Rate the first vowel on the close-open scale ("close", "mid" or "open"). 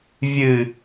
close